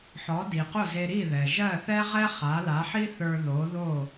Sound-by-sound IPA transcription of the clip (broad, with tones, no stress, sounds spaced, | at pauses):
ħ ɔ˩˥ d i˩ q o˥˩ z e˧ ɾ i˥˩ ð ɛ˩ ʒ ɜ˥˩ θ ɛ˥ ʁ ɛ˥ χ a˩˥ l a˩˥ ħ i˥ θ ə˞˧ ð o˩˥ ð o˥˩